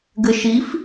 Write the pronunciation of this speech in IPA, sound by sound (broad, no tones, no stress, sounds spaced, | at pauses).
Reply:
ɡ ɘ ʃ i f